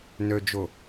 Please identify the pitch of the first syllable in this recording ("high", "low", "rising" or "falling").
low